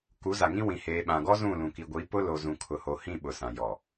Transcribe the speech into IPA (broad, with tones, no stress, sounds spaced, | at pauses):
k u˨˦ z a˨ ŋ ĩ˦ w ĩ˨ h eː˨ ɓ ã˨ ɡ ɔ˦ z ũ˦˨ l ũ˨ k i˨ ɡʷ i˨˦ p ʊ˦ l o˨ z ũ˨ kʰ ʊ˨ h o˨ h ĩ˦˨ ɓ ʊ˨ s ã˨ j ɔ˨